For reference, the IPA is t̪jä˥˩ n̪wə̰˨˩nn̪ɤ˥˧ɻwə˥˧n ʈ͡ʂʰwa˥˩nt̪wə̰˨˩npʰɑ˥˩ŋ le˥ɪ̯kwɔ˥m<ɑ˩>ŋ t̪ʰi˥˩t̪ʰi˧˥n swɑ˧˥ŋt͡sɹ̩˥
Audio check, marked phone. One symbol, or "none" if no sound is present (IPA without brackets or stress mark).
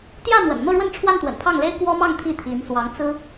ɑ˥˧